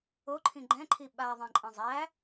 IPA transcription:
oǃʰĩ ɡ͡ǃɛ̃ǃʰi ɓaðˤẽǃʼə̃ zˤæ

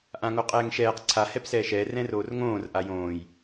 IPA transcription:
ʔãŋoqʼɛːŋʃɛːq ǀʰa hɛpsɛːʃɛː rɛ̃roːrŋõːr ʔajõːj

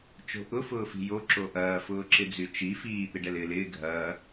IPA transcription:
t͡ʃo̤ʔʊ fʊːfi̤jo ǁoʔɐː fʊːǁɪd͡zyt͡ʃi fiː t̪ɪɖɛlɪːlɪː ɡʱɐː

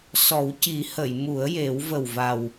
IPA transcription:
sɔ˨˩˦wci˨˩˦hə˨˩˨j mu˨˩˦ə̯je˨˩˦wvə˨˩wva˨˩w

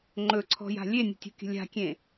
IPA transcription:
ŋ͡ǃɵǀʰɔ̤ja̤ lʲenʲə̤tʲo̤kʲə̤ lʲa̤kʲẽ

